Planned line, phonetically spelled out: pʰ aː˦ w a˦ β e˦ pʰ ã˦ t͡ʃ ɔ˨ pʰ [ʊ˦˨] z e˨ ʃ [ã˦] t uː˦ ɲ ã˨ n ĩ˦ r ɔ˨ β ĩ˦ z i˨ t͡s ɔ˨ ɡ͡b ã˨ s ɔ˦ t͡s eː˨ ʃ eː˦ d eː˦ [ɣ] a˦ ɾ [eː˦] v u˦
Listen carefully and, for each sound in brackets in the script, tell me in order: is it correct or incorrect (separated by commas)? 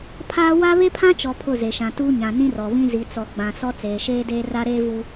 correct, incorrect, incorrect, correct